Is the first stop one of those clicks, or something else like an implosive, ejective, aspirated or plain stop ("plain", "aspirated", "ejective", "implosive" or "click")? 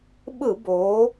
implosive